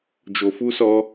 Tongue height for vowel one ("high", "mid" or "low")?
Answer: mid